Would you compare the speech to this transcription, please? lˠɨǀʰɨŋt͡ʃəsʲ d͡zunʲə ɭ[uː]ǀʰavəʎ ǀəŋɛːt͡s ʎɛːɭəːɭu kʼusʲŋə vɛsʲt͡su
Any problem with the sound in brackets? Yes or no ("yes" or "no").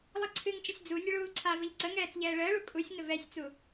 no